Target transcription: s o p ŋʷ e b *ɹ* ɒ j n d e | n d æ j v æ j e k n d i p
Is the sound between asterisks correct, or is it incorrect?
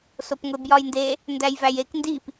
incorrect